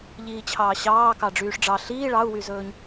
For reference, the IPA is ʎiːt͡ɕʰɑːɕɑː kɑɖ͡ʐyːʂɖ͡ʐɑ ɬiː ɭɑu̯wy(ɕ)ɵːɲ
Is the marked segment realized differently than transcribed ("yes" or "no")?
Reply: yes